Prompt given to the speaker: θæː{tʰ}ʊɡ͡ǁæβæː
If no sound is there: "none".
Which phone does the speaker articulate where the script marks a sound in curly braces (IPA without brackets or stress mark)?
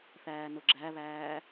n